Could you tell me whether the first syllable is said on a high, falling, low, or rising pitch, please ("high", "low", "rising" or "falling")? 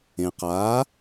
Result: low